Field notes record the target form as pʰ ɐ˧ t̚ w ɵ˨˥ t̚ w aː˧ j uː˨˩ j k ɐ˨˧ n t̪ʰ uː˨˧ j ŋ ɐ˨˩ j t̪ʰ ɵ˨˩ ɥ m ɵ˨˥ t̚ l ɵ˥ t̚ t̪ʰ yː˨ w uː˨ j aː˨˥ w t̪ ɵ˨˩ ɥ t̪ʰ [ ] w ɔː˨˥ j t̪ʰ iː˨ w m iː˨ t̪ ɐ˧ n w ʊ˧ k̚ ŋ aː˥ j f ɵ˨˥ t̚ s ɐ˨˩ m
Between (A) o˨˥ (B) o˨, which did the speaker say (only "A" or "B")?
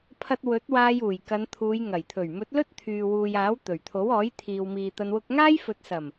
A